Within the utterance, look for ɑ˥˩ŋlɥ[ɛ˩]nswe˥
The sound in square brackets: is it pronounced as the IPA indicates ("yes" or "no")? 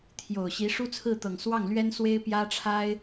no